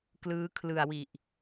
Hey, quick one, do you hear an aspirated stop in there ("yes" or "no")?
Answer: yes